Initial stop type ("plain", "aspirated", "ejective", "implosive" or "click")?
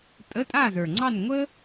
ejective